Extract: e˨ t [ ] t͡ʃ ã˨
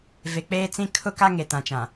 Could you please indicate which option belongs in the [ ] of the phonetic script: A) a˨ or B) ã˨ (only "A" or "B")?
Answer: B